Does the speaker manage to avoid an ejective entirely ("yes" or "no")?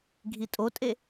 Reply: no